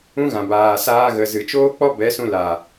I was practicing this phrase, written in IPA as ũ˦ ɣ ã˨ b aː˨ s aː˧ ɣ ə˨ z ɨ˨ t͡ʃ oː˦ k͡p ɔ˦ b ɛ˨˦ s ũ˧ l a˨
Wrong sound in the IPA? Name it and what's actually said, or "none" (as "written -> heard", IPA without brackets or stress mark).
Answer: none